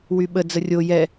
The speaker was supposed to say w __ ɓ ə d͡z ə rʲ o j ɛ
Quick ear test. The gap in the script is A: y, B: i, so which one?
A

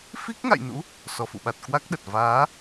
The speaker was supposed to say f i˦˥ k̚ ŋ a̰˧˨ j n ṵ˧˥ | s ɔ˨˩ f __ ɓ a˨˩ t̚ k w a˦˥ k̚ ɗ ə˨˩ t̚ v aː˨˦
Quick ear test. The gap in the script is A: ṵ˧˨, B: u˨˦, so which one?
A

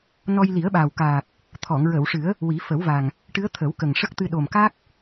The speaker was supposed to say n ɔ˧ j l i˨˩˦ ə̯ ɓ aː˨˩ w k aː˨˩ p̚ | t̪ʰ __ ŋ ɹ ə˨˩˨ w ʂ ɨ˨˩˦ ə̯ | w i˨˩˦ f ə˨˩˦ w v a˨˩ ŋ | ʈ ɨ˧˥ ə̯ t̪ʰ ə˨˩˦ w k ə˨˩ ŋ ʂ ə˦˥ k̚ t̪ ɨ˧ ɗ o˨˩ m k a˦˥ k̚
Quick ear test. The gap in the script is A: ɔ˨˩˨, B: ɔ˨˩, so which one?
A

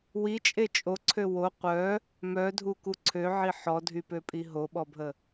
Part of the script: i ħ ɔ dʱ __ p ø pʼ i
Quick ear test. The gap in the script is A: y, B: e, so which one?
A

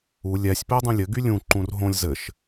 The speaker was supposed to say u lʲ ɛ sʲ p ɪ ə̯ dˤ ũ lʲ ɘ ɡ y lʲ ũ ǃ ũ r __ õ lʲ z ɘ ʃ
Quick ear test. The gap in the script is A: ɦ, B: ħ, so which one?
A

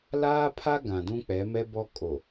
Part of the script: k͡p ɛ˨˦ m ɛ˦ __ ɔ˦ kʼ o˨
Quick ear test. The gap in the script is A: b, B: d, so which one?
A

